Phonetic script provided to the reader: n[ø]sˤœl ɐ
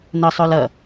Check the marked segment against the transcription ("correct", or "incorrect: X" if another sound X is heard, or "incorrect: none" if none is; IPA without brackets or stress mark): incorrect: ə